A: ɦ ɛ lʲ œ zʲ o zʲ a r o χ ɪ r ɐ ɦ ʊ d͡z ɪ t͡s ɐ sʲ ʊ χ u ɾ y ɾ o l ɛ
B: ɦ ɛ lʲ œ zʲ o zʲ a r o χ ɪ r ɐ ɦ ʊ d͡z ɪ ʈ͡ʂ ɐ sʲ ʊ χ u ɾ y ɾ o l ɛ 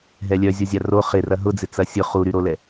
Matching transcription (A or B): A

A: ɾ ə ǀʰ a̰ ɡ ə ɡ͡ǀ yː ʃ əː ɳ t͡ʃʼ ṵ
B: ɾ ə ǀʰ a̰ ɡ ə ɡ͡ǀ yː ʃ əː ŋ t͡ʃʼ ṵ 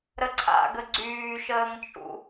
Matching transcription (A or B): B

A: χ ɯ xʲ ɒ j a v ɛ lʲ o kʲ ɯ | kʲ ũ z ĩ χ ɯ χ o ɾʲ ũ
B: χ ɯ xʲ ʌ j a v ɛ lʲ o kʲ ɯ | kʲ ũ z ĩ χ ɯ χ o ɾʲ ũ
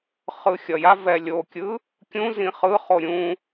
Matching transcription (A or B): B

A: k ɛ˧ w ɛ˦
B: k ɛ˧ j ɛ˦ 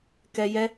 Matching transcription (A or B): B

